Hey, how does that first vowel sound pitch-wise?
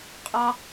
high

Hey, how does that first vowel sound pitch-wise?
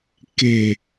low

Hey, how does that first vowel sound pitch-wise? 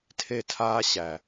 falling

